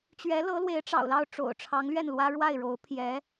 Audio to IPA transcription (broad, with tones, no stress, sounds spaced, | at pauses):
t͡ɕ ɥ ɛ˧˥ l ɤ˧˥ l w e˧˥ ɪ̯ ʈ͡ʂ ɑ̰˨˩ ʊ̯ l ɑ˥˩ ʊ̯ ʈ͡ʂ o̰˨˩ ʊ̯ ʈ͡ʂʰ ɑ˧˥ ŋ l ɥ ɛ˥˩ n l w ä˥ ɻ w a˥˩ ɪ̯ ɻ o˧˥ ʊ̯ pʰ j ɛ˧˥